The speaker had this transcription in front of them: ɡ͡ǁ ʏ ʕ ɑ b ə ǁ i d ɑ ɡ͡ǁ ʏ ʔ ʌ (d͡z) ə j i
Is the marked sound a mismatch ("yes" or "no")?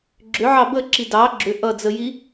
no